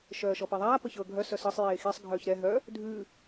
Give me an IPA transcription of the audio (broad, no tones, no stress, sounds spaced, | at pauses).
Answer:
ʃ œː ʃ ɔ p e ðˤ aː p ə ç ɤː ɡʱ œ s œ s ɤ sˤ j eː x e sˤ ɡʱ œː ç ɾ ɛ ɦ œ | dʱ ʉ